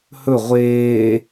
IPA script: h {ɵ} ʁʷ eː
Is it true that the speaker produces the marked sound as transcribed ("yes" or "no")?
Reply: yes